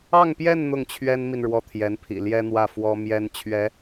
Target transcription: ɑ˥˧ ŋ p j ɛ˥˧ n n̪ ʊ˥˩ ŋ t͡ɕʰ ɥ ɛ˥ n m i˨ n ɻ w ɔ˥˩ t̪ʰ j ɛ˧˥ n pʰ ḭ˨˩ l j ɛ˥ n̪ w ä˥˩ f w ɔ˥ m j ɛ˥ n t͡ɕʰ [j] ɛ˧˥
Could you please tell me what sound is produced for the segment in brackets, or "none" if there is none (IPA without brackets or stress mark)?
ɥ